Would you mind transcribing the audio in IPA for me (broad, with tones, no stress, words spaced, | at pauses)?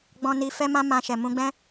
ɡ͡bɔ̃˧ ni˧fɛ˦mã˦ mã˧ʃɛ˨ mũ˧ɡ͡bɛ̃˦